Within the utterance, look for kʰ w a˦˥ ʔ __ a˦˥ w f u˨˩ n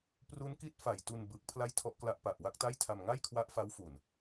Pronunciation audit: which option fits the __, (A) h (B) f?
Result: B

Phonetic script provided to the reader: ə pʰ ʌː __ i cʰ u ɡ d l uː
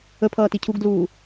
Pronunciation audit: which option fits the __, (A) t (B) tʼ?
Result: A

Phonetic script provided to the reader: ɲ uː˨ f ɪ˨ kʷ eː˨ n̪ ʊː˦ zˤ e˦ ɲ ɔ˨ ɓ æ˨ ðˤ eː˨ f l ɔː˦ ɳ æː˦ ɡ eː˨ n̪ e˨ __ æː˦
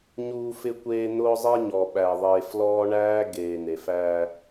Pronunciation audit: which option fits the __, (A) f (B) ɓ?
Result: A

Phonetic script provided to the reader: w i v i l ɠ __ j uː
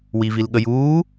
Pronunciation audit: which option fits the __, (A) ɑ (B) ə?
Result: B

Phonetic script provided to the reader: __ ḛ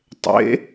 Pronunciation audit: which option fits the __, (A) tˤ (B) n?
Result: A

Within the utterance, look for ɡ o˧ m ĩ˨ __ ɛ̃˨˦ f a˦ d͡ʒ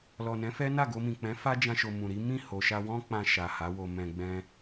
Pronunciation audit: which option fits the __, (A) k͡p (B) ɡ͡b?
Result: A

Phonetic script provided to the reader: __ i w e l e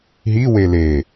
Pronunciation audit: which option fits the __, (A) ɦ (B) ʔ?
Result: A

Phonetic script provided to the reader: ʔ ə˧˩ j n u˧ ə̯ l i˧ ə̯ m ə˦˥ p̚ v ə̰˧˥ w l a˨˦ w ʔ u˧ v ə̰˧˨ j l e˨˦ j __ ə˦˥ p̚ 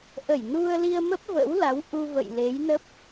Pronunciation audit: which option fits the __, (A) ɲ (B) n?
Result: B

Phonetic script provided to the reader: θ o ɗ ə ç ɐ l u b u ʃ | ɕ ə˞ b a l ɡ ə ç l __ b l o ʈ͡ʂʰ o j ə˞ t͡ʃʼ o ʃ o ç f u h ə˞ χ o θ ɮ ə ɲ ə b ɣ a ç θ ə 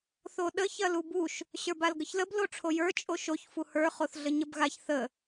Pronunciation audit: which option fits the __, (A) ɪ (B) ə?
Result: B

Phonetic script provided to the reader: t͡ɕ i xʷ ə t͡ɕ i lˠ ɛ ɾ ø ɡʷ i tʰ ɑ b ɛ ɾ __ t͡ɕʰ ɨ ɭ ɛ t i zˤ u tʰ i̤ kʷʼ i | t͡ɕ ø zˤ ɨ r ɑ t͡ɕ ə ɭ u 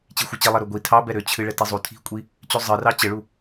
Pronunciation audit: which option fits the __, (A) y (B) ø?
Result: B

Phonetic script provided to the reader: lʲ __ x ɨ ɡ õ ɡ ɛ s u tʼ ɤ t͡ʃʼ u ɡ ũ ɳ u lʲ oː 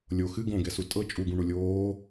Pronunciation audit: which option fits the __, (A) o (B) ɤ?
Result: A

